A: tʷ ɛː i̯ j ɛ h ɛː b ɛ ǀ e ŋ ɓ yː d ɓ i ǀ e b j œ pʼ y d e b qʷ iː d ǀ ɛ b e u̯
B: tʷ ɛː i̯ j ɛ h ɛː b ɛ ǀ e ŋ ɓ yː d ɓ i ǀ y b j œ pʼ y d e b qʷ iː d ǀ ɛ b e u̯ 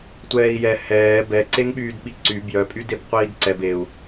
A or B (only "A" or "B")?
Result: B